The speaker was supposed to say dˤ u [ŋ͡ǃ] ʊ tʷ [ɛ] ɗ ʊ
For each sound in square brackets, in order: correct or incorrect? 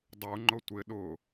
correct, incorrect: ɪ

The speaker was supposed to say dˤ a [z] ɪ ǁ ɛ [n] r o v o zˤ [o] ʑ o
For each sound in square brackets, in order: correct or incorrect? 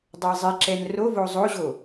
incorrect: zˤ, correct, correct

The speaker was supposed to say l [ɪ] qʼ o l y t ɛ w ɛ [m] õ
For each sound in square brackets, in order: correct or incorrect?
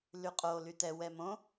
incorrect: y, correct

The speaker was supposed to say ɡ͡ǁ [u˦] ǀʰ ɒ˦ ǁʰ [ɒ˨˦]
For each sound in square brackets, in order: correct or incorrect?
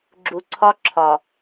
incorrect: u˨, incorrect: ɒ˨

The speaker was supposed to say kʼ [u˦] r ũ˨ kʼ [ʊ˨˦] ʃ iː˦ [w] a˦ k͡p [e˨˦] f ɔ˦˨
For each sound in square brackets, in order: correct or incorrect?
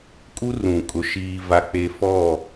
correct, correct, incorrect: v, incorrect: e˦

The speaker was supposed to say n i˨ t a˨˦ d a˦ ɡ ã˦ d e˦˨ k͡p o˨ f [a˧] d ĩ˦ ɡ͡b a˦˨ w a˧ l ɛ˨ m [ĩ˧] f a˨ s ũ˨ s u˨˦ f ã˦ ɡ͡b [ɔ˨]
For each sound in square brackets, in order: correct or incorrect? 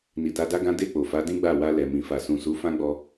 incorrect: a˨˦, incorrect: ĩ˨, incorrect: ɔ˧

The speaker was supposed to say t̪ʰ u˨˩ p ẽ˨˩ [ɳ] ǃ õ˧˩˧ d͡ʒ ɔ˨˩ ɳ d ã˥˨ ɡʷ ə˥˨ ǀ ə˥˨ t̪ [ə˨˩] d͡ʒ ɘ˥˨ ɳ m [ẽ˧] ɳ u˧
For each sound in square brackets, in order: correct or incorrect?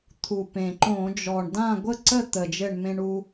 incorrect: none, correct, correct

